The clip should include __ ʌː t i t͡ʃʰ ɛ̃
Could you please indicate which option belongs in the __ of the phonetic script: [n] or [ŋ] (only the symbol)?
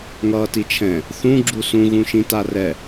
ŋ